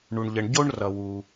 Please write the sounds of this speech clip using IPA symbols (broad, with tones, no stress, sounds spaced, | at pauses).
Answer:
ɳ u˩ ɳ ʎ ə˩ ɳ ɟ o˥ ɳ r ʌ˩ w u˩